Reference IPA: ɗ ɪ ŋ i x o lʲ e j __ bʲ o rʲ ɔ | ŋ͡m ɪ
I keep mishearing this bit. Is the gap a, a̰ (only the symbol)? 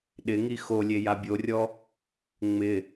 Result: a